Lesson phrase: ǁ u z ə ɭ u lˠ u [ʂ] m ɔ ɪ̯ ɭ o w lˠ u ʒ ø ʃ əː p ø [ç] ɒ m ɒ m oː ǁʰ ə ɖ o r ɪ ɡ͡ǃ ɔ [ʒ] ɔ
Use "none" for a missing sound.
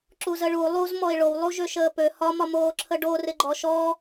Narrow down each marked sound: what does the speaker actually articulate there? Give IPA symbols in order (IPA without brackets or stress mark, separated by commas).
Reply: z, h, ʃ